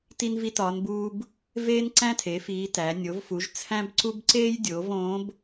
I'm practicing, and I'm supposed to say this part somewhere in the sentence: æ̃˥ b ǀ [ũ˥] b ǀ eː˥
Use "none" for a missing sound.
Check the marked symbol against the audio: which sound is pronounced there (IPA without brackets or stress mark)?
u˥